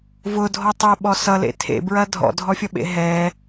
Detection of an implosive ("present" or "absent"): present